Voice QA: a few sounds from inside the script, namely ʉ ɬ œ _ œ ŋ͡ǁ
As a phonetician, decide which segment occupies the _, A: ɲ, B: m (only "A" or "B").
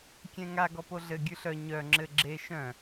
A